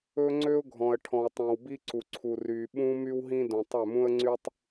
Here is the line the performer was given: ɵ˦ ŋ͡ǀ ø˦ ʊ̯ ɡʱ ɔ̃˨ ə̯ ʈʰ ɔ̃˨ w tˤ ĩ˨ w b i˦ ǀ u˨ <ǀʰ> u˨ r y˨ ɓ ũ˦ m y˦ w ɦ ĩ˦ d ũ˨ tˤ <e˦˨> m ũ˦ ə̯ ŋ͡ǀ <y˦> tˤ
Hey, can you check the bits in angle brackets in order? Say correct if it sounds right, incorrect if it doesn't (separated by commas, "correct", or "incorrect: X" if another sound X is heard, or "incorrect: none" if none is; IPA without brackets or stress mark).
correct, incorrect: ø˦˨, correct